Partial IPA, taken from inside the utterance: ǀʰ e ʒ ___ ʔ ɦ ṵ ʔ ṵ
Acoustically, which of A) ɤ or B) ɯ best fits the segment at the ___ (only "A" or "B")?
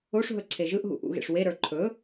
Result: B